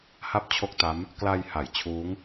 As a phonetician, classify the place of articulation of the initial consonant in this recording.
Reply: glottal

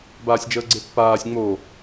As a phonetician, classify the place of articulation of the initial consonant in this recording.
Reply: labial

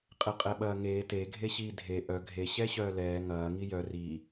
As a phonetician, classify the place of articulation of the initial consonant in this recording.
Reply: uvular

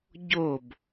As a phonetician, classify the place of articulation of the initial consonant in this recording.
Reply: palatal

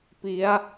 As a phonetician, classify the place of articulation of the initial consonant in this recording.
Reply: labial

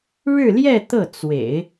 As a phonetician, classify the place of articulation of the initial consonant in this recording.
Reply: retroflex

